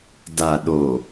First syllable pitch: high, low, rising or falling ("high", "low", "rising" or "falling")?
low